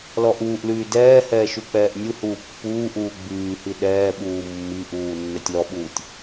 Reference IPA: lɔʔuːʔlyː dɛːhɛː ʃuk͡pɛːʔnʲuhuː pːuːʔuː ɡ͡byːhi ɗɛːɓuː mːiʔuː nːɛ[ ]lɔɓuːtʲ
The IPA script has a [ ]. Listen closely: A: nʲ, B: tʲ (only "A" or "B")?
B